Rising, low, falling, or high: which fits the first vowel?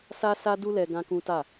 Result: high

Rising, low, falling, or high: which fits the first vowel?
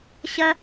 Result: high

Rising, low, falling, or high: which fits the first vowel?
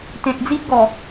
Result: low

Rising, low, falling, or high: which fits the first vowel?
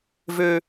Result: low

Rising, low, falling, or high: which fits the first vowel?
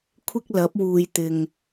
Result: high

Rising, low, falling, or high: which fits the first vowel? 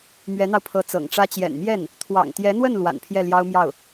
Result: rising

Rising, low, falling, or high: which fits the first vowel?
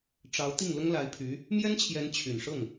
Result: rising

